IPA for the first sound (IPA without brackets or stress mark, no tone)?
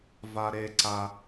v